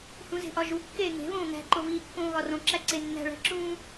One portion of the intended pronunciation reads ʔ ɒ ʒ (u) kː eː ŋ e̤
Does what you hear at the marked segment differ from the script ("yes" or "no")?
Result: no